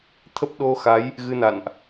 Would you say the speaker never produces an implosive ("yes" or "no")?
no